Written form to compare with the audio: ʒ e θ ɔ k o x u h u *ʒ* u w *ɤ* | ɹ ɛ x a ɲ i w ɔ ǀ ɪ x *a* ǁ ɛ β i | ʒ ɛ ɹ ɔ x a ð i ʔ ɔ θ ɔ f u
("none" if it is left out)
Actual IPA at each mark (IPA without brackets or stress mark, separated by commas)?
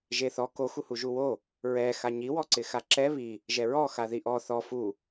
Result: ʒ, o, a